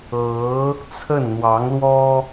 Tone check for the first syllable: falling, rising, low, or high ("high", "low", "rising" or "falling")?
rising